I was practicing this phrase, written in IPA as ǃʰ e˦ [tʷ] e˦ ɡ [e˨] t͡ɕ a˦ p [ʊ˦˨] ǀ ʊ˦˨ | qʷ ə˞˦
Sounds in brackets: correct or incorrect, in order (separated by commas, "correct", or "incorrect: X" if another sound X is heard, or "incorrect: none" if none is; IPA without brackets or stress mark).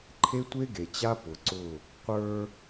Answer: correct, correct, incorrect: ʊ˨